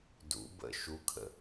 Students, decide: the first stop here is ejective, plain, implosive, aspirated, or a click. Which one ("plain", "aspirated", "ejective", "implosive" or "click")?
plain